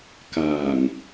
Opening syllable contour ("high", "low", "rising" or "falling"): low